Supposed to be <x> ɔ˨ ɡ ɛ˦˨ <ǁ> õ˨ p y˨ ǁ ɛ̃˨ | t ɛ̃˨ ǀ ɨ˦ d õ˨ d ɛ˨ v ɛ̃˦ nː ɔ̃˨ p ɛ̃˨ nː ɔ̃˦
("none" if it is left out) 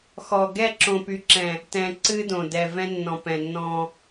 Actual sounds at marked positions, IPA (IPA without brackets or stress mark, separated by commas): x, ǁ